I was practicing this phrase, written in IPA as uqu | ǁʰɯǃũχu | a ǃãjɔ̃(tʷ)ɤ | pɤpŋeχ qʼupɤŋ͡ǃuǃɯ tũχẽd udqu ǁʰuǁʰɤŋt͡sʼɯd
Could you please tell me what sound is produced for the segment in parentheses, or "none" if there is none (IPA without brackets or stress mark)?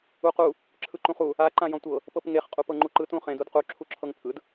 tʷ